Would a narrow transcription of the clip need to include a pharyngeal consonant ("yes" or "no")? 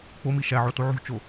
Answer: yes